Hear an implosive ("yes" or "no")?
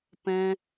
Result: no